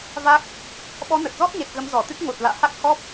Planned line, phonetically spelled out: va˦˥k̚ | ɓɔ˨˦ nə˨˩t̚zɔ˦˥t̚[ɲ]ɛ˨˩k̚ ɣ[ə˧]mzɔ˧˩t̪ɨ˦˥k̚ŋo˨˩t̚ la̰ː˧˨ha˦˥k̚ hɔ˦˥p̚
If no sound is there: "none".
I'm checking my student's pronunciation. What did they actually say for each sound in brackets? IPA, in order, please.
ɲ, ə˨˦

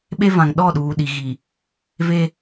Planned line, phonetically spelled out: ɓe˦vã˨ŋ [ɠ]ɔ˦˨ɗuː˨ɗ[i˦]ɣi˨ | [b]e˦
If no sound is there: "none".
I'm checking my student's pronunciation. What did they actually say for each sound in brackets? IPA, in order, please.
ɗ, i˨, v

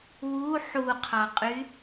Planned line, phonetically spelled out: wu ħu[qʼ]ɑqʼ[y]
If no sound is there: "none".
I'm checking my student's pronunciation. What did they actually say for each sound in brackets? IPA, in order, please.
qʰ, y

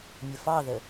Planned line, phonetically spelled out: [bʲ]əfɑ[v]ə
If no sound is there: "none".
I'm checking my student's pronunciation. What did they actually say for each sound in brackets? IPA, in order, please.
mʲ, ð

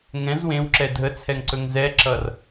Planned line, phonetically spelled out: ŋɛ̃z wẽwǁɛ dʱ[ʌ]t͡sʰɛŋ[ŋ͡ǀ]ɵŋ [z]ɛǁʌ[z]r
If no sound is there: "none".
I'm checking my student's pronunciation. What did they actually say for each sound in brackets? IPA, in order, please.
ə, ǀ, z, none

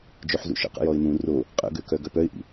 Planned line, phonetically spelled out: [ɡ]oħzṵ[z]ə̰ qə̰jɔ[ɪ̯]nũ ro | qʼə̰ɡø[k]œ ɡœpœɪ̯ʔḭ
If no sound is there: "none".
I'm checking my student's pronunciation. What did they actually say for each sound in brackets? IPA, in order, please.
d͡ʒ, ʃ, ɪ̯, k

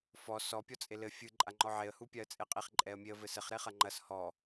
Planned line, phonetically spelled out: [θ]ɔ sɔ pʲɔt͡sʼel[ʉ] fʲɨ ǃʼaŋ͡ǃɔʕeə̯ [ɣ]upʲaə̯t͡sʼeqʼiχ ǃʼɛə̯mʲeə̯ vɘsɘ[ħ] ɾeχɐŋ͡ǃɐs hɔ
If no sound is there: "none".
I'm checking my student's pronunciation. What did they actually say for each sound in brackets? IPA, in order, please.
f, ɘ, h, χ

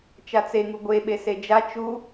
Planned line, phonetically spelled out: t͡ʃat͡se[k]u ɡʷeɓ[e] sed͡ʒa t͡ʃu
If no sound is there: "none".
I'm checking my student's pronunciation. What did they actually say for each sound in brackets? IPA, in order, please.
ŋ, e

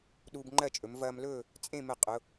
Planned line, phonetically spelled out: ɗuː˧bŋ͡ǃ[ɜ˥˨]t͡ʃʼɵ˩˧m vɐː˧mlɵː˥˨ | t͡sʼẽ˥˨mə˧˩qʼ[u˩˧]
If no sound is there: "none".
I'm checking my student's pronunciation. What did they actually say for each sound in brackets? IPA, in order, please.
ɜ˥˨, ʊ˩˧

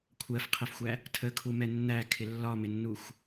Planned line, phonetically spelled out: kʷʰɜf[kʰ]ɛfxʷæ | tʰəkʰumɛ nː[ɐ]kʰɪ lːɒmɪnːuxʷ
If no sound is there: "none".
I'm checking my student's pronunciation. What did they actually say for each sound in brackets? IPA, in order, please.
qʰ, æ

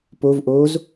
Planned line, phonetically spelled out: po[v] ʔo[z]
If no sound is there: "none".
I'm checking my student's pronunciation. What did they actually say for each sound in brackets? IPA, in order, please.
v, z

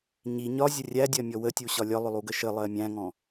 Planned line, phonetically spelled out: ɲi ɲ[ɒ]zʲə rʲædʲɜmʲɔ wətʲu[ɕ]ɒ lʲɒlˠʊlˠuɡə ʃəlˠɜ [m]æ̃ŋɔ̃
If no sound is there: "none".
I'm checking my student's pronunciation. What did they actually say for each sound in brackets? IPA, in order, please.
ɒ, ɕ, mʲ

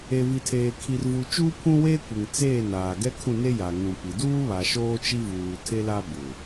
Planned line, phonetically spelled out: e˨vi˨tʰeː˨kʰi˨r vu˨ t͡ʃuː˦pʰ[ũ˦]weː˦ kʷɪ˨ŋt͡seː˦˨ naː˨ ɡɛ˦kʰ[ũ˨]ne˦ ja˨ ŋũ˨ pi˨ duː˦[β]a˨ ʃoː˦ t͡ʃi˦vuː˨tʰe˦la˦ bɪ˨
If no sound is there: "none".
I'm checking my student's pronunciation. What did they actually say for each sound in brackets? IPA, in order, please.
ũ˦, ũ˦˨, β

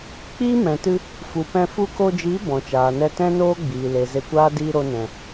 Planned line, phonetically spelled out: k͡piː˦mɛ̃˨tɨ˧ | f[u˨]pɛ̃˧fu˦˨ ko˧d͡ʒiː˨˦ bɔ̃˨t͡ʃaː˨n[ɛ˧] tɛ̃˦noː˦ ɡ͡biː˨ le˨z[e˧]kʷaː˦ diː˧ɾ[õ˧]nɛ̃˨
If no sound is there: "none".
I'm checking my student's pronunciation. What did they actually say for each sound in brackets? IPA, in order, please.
u˨, ɛ˧, e˧, o˧

